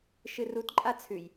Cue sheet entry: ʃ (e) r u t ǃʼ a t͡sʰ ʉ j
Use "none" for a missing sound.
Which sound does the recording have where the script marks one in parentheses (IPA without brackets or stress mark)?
ɨ